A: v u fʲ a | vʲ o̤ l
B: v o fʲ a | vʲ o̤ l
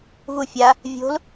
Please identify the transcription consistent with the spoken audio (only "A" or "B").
A